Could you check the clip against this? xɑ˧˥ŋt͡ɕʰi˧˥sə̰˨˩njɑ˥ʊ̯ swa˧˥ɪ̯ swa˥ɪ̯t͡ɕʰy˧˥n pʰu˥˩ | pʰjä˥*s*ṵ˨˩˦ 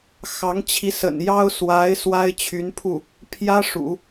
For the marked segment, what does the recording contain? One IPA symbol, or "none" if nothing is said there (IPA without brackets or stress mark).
ʂ